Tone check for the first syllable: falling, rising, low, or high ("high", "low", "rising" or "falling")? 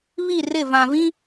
falling